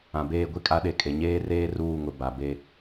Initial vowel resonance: nasal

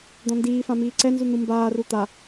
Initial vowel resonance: nasal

